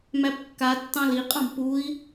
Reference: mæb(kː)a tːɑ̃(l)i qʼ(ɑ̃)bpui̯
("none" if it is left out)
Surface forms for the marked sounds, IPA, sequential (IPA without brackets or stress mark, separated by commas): kː, l, ɑ̃